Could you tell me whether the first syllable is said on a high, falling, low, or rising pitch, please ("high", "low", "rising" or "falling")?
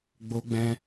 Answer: high